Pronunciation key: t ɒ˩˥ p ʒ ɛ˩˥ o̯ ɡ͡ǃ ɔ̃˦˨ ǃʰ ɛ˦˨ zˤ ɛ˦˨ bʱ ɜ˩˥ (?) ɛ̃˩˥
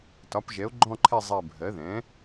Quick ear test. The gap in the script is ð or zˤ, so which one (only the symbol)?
ð